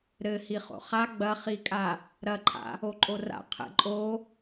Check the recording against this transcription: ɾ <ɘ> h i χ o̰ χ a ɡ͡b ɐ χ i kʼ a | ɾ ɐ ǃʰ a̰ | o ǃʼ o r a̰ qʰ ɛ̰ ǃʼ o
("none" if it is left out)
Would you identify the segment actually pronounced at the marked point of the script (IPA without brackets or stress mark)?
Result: ɘ